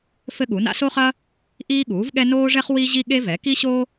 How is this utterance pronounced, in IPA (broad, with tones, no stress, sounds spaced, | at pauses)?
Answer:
f ɘ˥ ɠ u˩˥ n a̰˥ s o˥ χ ɐ˥ | ʔ iː˥ ɠ uː˩˥ v ɠ ɛ˥ n oː˥ ʐ ɛ˥ χ w i˥ ʑ i˥ ɠ e˥ v ɛ˩˥ k i˥ ɕ o˥